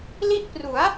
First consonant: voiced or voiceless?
voiced